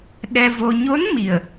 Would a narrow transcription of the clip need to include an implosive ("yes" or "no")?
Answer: yes